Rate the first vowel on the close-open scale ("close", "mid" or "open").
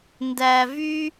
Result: open